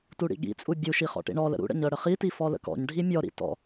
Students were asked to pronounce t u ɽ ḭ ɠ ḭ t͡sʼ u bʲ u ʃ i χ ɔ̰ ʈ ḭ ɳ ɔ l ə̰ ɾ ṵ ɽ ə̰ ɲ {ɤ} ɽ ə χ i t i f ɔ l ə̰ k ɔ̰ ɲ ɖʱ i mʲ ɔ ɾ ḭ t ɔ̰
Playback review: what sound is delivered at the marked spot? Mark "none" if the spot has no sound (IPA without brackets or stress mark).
ɤ